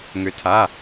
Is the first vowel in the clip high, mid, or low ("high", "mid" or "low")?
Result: high